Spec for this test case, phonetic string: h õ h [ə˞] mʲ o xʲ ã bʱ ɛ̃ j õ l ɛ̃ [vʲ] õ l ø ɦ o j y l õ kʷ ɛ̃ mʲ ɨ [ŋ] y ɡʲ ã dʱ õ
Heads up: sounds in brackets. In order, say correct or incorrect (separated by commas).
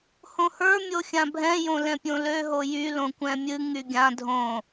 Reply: correct, incorrect, correct